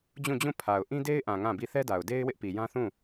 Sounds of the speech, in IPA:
d͡ʑũ˦˨d͡ʑũ˦˨ pʰa˨ʊ̯ ʔĩ˦de˦ɪ̯ʔã˨ ŋã˦˨bi˦˨ θɛ˦da˨ʊ̯de˦ɪ̯ wɪ˦ʔ pi˨jã˦θũ˦˨

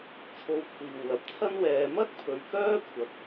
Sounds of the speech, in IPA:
t͡sʰo˧wkʷʰiː˨wlɐ˨˥p̚t͡sʰɐ˥n wɛː˨˧mɐ˥t̚pʰɵ˨ɥ kœː˥kʷʰɐ˨˥k̚

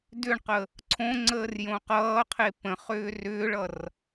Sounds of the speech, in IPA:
dʏɳqə | ǀʰõŋ͡ǀəːr jõqʌːqʰe pə̃χʏː rʏːɭʌr

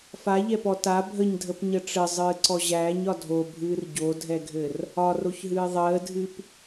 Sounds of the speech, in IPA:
faʎɛpɔ ta bʱəɲdʱəpɲə ʈ͡ʂɘzˤɨːǀɔ ʑæːɲɒ dʱobʱɨːr ɟodʱɛɡʱɘr | ɒroçɦɨː ðˤəːdʱɨp

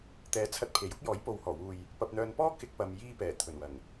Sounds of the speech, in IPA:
t̪ɛː˨˥t͡sʰɐ˧t̚pʰe˨˩j ʊ˥k̚ jɔː˨˥jpo˨˧whɔː˨˩wuː˨j | pɐ˧p̚n̪œː˧n pɔː˥kɪ˧k̚ pɐ˧mjiː˥pɛː˨˩ t̪ʰɵ˨˩nwɐ˨˩ŋ

